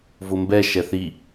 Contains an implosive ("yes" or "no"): no